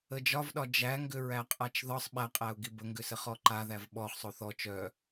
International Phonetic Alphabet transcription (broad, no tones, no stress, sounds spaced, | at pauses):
ə d͡ʒ ɒ v ɗ ɒ d͡ʒ æ ŋ ɡ ʏ ɹ æ qʼ a t͡ʃ ð ɒ sˤ ɓ æ qʼ æ ʊ̯ ɡ i b ə ŋ ɡ ʏ s ə χ ɔ ǃ a ð æ v ɓ ɔ χ sˤ o θ ɔ t͡ʃ œ